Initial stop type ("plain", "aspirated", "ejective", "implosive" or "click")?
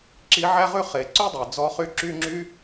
click